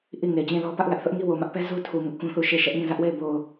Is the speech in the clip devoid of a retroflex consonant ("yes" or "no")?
yes